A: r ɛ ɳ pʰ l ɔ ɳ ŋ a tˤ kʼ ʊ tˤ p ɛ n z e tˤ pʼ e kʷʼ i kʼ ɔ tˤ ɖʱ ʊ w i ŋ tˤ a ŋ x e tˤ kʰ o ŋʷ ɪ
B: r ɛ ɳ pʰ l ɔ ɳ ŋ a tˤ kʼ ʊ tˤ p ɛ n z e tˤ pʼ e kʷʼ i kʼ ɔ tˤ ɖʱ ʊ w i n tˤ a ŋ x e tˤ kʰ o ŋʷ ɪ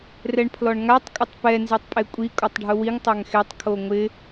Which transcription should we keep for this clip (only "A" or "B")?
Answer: A